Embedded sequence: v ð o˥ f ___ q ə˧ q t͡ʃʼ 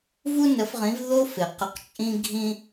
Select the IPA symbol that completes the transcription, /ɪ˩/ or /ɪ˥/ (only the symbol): ɪ˩